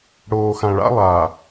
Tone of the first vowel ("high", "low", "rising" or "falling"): low